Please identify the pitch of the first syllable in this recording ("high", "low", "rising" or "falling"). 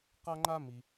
high